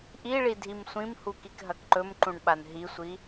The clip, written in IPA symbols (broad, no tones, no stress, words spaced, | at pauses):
ʔiɭi dʱimsʷĩmhu kikɦɐkǃɵmǃũɳ ɓanɦisʷi